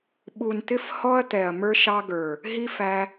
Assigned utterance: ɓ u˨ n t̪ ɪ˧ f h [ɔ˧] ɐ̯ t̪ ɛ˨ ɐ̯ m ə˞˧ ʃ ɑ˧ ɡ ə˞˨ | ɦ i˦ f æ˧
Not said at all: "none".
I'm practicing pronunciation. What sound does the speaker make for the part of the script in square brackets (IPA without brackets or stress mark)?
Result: ɔ˧